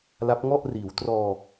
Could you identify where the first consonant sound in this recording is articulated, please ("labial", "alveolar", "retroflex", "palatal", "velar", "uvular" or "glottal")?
alveolar